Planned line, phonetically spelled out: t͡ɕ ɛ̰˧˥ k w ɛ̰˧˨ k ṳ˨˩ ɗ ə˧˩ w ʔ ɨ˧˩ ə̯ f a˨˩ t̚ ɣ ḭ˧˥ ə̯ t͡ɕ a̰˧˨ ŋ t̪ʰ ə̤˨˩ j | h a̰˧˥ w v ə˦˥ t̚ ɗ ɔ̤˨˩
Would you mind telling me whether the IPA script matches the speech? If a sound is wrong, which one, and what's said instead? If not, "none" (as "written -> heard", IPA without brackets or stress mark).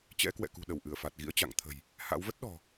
none